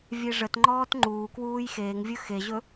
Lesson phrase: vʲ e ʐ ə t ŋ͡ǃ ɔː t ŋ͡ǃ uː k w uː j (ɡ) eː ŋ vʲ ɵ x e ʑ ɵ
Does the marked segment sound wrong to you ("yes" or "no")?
yes